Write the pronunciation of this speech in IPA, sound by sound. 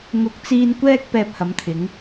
ŋ ʊ˧ k̚ t͡s iː˧ n kʷ ɛː˥ k̚ p ɛː˧ p̚ h ɐ˨˥ m t̪ʰ ɪ˨˥ ŋ

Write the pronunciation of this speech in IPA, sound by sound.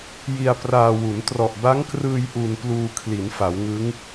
j i˧ a̯ p r aː˧ w u˩˦ n t r ɔ˨˩ ʔ b a˦˥ ŋ k r ɯː˧ j ʔ u˧ n p l uː˧ kʰ l i˩˦ n f a˩˦ w ŋ ɯ˦˥ ŋ

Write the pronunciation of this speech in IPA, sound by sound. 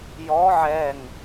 j ɔ ʕ ɛ ŋ

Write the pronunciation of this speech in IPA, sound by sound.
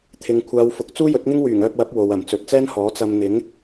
t̪ʰ ɪ˨ ŋ kʷʰ aː˨˧ w f ʊ˨ k̚ t͡s uː˥ j ɵ˨˥ t̚ ŋ ɪ˥ ŋ w yː˨˩ ŋ œː˧ p̚ w ɐ˨˥ p̚ w o˨ w ɐ˨˩ m t͡s ɵ˨ t̚ t͡s ɛː˥ n h ɔː˨˥ t͡s ɐ˧ m n̪ ɪ˨˥ ŋ

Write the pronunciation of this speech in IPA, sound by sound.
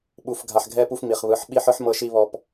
ɓ u˨ f ɡʱ a˨ ħ ɡʱ ɛ˦ p u˦ f m i˨ χ β ɯ˨˦ ħ ɓ i˦ ħ ɯ˦ ħ m ɤ˦ ʃ i˦ β ɔ˨ p

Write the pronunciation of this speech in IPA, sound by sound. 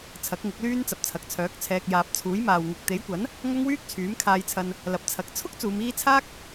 t͡sʰ ɐ˨˥ k̚ ŋ ɪ˨˥ k̚ l yː˥ n t͡s ɐ˨ p̚ t͡sʰ ɐ˨ k̚ t͡sʰ œː˨˥ k̚ t͡sʰ ɛː˧ k̚ j aː˨ p̚ t͡sʰ uː˨˥ j m aː˨ w ŋ ɪ˨ k̚ t̪ e˨˥ j kʷ ɐ˨˥ n | ŋ ɐ˥ ŋ w yː˥ k̚ t͡sʰ yː˨˥ m kʰ aː˧ j t͡sʰ ɐ˧ n | l ɐ˨˥ p̚ t͡sʰ ɐ˨˥ k̚ t͡sʰ ʊ˥ k̚ t͡s uː˨˧ m iː˥ t͡sʰ aː˥ k̚

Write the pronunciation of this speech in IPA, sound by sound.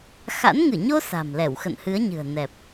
x a̰˧˥ n ŋ ɨ˧˩ ɲ o˧ s a̤˨˩ m l ɛ˧˩ w x ə̰˧˨ n h ɨ˨˦ ə̯ ɲ ɨ̤˨˩ ə̯ n ɛ˨˩ p̚

